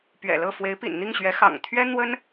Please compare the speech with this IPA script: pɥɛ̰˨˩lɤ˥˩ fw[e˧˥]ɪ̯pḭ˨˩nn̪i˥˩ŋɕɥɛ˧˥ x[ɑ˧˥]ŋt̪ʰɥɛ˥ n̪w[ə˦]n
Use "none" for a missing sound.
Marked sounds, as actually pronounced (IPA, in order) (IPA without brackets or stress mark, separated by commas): e˧˥, ɑ̰˨˩, ə˥